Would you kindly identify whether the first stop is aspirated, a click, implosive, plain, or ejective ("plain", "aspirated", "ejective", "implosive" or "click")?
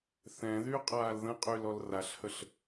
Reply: ejective